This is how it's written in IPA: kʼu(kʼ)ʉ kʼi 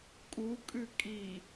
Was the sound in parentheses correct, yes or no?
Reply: yes